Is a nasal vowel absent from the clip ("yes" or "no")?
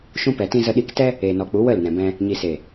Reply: no